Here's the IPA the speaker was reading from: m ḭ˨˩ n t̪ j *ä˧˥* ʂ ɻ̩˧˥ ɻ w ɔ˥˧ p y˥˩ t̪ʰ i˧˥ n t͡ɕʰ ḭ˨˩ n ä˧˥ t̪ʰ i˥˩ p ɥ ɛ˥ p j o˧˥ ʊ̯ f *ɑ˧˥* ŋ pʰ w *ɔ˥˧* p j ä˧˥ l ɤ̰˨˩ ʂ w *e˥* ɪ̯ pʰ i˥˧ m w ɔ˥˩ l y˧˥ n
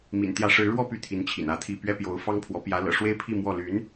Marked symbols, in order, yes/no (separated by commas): yes, no, no, yes